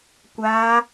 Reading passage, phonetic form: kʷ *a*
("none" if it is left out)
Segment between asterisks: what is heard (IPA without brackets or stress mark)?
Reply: a